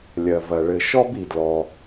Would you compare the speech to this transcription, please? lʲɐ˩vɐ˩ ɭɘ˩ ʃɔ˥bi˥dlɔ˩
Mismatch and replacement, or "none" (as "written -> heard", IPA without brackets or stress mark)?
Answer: i˥ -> i˩